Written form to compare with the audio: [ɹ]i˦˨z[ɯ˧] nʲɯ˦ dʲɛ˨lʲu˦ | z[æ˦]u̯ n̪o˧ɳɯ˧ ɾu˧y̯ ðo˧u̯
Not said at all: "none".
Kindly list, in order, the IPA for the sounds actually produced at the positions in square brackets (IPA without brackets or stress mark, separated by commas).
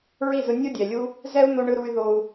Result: ɹ, ɯ˧, ɛ˦